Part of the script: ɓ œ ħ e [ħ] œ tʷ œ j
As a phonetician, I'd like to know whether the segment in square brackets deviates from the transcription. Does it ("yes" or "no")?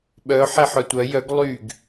no